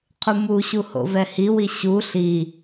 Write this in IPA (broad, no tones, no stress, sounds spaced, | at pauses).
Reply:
qʰ u m u ɕ u h o̰ v ɛ h i w i ɕ u ɬ i